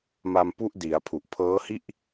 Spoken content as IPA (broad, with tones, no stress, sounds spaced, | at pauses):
m a˧ m p u˦˥ ʔ d i˩˦ a̯ pʰ u˨˩ ʔ pʰ ɤː˦˥ h i˥˩ ʔ